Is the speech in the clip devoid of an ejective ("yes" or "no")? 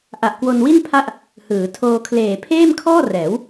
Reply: yes